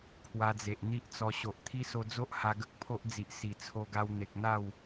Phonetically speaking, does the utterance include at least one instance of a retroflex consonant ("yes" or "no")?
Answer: no